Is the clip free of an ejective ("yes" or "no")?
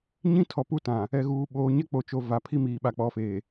yes